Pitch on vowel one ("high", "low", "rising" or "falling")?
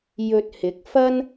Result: low